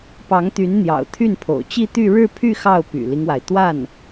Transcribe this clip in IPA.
pɑ˧˥ŋt̪y˧˥nn̪jɑ̰˨˩ʊ̯ t̪ʰy˥˩npʰo̰˨˩ʊ̯ t͡ɕi˥˧t̪y˥˧ ɻɻ̩˥˧pʰy˥˧ xɑ˥˩ʊ̯py̰˨˩li˦ŋwa˩ɪ̯ t̪wa˥˩n

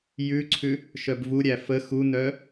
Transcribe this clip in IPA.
jʉǀʰʉ | ʃœbvuɾʲæ fə xunœ

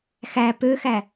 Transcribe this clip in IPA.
xæ pøxæ

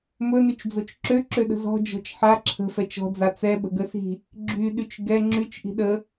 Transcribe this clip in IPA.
mɵnyt͡ʃd͡zot͡ʃ ǁøǁøɗə̤ zɔ̤d͡ʒɔ̤t͡ʃ ħa ǁʰə̤fɛt͡ʃ ɔ̤d͡za t͡sɛɓə̤ɡəsi̤ | ɡ͡ǁyɗyt͡ʃ ɡɛ ŋ͡ǁyt͡ʃʔi̤ ɗə

